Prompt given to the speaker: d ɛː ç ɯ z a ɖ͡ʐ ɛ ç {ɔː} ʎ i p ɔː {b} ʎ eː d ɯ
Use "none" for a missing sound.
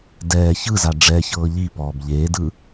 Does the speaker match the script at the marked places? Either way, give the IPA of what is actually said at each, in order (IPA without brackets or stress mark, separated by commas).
ɤː, b